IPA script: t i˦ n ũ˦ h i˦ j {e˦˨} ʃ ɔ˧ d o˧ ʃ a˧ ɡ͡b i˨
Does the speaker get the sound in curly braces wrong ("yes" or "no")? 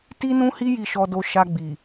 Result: yes